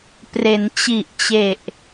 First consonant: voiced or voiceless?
voiceless